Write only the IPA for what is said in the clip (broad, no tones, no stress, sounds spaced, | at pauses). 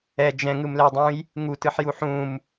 ɛ d͡ʒ ɛ̃ ŋ ɯ m l ɛ dˤ ũ j | ŋ u t ɯ ħ j u ħ ũ m